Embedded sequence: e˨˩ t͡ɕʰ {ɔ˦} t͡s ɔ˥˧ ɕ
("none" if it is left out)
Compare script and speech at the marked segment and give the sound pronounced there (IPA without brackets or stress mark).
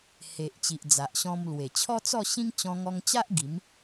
ɔ˦